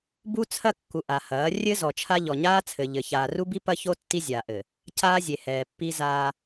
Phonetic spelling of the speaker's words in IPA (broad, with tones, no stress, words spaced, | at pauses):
bu˦t͡sʰɐ˦kːu˨ ʔa˨hɐː˨˦ rʲɘ˦ zɔ˨t͡ʃʰa˦ ʎɔ˨ɲaː˦t͡sʰɘ˨ ʎɘ˨ çaː˨ru˦bi˦ pɐ˦ço˦ tːi˦zʲaː˨ʔɘ˨ | caː˦zʲe˨hɛː˨ pːi˦zaː˦